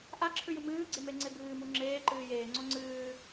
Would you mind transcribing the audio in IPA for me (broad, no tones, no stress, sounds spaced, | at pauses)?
ʔ a ǁʰ ʉ j ɨ m ɨː ɡ͡ǀ e m e ŋ͡ǀ e b ɨː m u ŋ͡ǁ eː ǃ ɨː j eː ŋ͡ǀ o ŋ͡ǀ ɨː